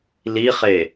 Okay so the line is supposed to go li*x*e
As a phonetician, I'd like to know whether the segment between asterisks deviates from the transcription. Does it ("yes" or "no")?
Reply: yes